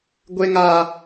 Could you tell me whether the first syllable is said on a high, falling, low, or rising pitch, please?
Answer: high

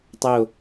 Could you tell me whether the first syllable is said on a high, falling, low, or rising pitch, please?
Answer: falling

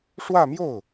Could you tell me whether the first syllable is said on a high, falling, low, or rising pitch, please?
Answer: falling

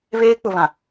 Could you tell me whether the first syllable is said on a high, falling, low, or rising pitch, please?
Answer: high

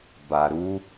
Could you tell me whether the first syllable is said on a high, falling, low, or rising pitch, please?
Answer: low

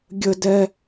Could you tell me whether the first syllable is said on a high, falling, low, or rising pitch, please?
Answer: high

